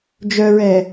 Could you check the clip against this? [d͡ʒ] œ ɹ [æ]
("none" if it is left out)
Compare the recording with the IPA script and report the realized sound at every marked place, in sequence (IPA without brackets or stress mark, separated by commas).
d͡ʒ, ɛ